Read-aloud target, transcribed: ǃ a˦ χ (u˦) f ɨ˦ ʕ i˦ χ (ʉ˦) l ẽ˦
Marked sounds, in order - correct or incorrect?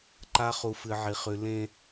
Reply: correct, correct

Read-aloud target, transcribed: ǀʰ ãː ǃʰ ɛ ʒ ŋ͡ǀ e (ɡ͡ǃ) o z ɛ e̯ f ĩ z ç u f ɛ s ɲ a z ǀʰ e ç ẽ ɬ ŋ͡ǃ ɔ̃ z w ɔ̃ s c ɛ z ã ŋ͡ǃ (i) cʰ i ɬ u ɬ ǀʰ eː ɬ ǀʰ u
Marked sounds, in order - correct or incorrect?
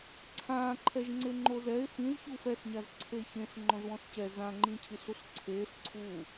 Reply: incorrect: ŋ͡ǃ, incorrect: ĩ

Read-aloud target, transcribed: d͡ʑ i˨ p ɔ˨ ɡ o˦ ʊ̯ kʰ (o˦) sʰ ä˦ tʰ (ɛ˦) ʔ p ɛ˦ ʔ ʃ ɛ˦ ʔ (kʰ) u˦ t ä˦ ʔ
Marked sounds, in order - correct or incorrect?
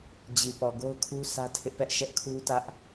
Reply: incorrect: u˦, incorrect: ɪ˦, correct

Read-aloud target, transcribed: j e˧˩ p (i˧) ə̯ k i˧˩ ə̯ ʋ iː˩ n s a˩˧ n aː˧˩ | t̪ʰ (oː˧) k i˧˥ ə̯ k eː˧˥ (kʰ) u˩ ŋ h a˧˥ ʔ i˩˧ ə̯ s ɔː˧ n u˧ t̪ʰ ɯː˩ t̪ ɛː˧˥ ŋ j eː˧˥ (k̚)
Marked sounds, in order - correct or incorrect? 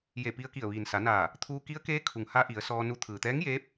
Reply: correct, incorrect: uː˧, correct, incorrect: p̚

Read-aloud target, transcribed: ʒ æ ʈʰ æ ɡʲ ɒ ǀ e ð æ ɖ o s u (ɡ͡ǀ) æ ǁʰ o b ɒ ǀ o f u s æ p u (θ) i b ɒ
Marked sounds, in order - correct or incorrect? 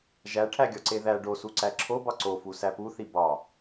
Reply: incorrect: ǀ, correct

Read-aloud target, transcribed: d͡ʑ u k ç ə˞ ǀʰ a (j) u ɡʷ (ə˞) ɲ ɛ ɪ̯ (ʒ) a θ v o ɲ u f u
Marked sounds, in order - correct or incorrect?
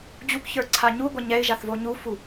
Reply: incorrect: ɲ, incorrect: ɐ, correct

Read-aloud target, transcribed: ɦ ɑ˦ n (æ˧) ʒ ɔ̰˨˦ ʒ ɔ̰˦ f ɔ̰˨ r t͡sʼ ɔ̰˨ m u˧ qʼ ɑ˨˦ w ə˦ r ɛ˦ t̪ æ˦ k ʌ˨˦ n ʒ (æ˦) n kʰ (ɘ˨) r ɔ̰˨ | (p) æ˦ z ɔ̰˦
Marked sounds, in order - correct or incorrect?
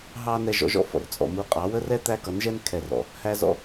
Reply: incorrect: ɛ˧, incorrect: ɛ˦, incorrect: ɛ˨, incorrect: h

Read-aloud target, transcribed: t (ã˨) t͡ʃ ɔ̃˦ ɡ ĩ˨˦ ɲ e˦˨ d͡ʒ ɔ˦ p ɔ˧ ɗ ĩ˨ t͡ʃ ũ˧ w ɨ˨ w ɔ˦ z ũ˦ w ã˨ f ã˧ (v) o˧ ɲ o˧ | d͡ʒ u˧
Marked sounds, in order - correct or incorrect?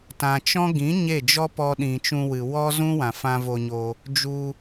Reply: correct, correct

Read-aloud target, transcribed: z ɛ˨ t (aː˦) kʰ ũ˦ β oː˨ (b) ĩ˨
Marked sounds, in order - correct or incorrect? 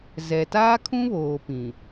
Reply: correct, incorrect: p

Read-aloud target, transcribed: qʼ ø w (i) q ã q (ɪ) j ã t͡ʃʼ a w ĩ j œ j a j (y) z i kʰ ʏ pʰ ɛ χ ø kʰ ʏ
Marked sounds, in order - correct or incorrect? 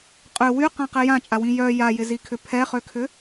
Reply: incorrect: y, incorrect: ɛ, incorrect: ɪ

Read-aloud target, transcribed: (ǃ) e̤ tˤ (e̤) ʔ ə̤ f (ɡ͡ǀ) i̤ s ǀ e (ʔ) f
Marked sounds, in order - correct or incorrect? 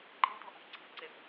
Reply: correct, correct, incorrect: ǀ, incorrect: none

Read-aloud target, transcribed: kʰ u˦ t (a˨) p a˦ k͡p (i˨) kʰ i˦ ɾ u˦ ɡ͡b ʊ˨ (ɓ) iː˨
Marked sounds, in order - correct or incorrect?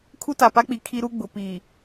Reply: correct, correct, incorrect: p

